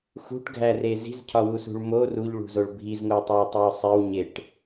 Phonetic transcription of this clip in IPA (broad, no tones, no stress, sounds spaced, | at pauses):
x ṳ ʈ ɡʱ æ r e z i̤ z cʰ ɒ w u s ṳ ɭ m o r u ʎ ɭ ṳ z o ɭ bʱ i z ŋ o tˤ o ɪ̯ tˤ i ʊ̯ sˤ i w ɲ e ʈ